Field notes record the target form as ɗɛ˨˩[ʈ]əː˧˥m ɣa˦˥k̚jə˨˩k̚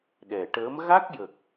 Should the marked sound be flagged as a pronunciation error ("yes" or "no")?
no